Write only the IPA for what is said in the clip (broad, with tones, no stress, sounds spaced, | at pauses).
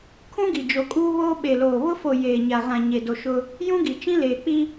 kʰ ũ˦ ɡ i˨ d͡ʒ o˨ kʼ uː˦ β oː˦ ɓ e˨ l oː˨ β ʊ˦ f o˨ j eː˨ ɲ a˨ ɣ ã˨ ɲ e˨ d o˨ ʃ ʊ˦ | j ũ˦ ɡ i˨ t͡ʃ ĩ˦ l eː˨ k͡p i˦